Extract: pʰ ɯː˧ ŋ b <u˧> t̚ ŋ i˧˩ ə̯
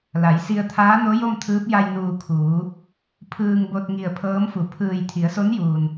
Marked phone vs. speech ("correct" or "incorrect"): incorrect